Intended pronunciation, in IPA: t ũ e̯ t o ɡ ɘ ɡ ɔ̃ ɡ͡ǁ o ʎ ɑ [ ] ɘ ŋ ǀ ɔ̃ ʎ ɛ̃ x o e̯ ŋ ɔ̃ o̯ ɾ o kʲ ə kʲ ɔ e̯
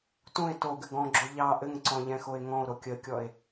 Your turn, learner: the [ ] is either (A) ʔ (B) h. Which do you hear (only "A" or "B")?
A